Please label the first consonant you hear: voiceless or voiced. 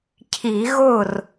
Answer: voiceless